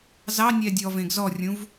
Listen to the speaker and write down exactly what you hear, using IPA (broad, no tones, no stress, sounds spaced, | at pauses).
z ɑ nʲ ɛ dʲ ɔ v ẽ ɡ z ɔ rʲ ũ v